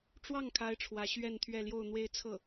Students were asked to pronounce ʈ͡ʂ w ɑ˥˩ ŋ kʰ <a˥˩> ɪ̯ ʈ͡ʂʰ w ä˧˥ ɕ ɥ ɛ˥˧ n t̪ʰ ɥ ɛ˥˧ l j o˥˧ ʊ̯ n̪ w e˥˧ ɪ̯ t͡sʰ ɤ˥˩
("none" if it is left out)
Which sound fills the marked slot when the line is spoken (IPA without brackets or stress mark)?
a˥